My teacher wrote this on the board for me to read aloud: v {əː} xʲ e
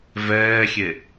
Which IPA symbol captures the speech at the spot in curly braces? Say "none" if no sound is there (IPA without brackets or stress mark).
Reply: ɛː